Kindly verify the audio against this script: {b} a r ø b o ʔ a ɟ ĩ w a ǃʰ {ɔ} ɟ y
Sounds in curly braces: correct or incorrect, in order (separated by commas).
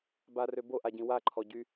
correct, correct